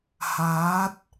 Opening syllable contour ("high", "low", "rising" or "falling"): rising